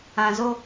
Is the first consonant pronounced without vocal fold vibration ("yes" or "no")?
no